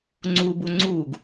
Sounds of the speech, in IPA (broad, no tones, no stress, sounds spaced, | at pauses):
ŋ͡ǀ u b u ŋ͡ǀ uː ɡ